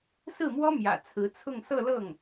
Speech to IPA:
sɹ̩˥˩mwɔ˥ mjä̰˨˩ t͡sʰɹ̩˧˥t͡sʰʊ˥˧ŋ sɤ˥˧lɤ˥˩ŋ

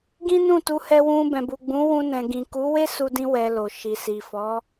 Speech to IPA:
ɡĩ˦nũ˦˨tu˧ hɛ˧wũ˧bɛ̃˨ bu˨ɡ͡bũ˨˦wũ˧ nɛ̃˨ɡĩ˨ ku˨˦we˦su˧dĩ˧ wɛ˧lo˨ ʃi˨si˨fɔ˨˦

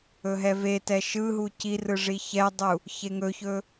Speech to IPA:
ɵɦɛvetɛ ʃɯɦu cirɯ ʐiçɛdˤu | çeŋɵçɵ

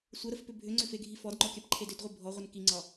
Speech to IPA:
sʷəɾəfpʏ bʱʏŋ͡ǀʏfeɡʱi fɔdŋ͡ǃɔkʲapǃʰed ʏdʁʷi bʱɔʁʷən kiŋ͡ǀɒ

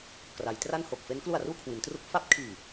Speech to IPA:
kra˩˦jtra˥˩n ho˨˩k̚fe˦˥n klu˨˩a̯ruː˧ kʰwi˩˦ntru˦˥k̚ fa˦˥p̚kʰiː˨˩

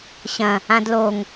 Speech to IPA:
ɕɐ̃ | ãdloŋ

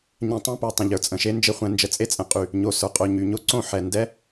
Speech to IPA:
ɲɛ̃˧tˤẽ˦pə˞˨ tˤə̃˨ʎə˞˨t͡sʼə̃˨ʃe˦ nd͡ʒe˦χʷɛ̃˧nd͡ʒə˧ t͡sʼe˦t͡sʼɛ̃˨qʼy˨ | ɲo˨ sə˞˨qʼo˨ɲy˨ ɲo˦ǀõ˦˨ ħɛ˨ndɛ˦

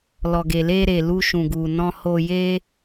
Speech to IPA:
lɔ˨ɡe˨le˧ɾe˨ lu˧ʃũ˨ɡu˨ nɔ̃˧ho˧je˦

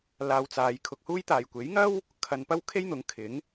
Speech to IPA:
laː˧wt͡saː˨˧j kʰʊ˧k̚huː˥jt̪aː˨j kʷe˨˥jŋɐ˥w | kʰɐ˧npɐ˥w kʰe˥jn̪ʊ˨˥ŋkʰɪ˨˥ŋ

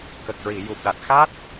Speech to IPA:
kə˨˩k̚ɹi˨˩˨ju˨˩p̚ɗa˨˩t̚ xa˦˥t̚

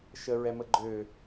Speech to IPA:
ʃəɹɛmə ɡ͡ǃø

